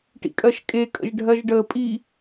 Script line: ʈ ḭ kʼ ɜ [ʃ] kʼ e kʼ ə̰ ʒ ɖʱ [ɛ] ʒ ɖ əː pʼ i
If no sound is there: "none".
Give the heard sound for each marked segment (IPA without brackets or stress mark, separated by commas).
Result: ʃ, ɜ